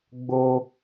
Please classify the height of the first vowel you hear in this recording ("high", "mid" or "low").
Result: mid